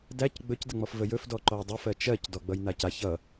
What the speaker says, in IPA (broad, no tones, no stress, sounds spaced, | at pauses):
d æ c ɡ͡b ɵ c d ə ŋ͡m ɔ f v ə j ɵ f d ɔ ǃ ɔ j dˤ ʌ f ɜ t͡ʃ ɜ c d ɔ ɡ͡b ʌ j n a c a ç ʌ